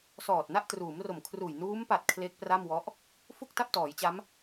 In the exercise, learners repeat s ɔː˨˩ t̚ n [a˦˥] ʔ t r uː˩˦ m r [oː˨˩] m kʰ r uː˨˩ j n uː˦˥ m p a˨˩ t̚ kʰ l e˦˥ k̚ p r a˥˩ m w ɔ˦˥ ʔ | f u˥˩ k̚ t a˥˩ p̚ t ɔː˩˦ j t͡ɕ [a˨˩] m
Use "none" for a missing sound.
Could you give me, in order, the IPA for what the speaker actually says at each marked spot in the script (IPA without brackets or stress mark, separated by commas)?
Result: a˥˩, o˨˩, a˦˥